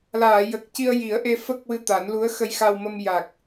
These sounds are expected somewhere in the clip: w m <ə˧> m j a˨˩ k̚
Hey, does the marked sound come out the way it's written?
yes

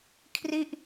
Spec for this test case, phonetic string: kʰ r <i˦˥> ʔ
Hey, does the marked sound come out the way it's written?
no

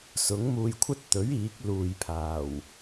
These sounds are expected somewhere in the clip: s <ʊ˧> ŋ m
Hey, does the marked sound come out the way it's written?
no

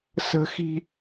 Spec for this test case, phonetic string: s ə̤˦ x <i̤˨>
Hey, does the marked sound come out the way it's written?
no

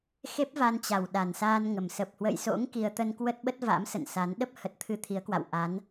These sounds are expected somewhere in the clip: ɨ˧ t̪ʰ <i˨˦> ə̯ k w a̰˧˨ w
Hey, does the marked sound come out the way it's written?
yes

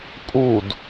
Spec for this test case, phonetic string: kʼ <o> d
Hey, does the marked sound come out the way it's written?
no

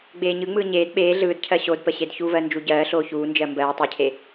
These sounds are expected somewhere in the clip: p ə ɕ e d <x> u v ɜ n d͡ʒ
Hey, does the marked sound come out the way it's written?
no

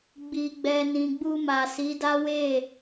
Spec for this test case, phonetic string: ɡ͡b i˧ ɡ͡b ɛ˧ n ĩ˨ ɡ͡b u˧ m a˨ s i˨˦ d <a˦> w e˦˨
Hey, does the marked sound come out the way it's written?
yes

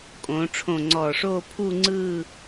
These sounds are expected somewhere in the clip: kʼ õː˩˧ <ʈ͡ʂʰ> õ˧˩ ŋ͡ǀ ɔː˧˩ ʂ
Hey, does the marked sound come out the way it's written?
yes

